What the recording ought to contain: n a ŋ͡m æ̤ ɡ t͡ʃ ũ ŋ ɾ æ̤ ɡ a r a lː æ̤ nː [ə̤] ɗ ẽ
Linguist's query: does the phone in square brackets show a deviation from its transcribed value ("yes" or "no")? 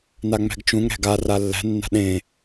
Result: yes